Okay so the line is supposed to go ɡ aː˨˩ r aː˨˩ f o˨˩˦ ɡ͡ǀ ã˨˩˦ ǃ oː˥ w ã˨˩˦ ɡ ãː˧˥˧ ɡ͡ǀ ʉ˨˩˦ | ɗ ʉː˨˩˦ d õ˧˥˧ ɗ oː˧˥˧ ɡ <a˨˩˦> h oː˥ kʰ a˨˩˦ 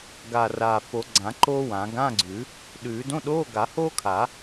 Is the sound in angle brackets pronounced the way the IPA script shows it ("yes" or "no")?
yes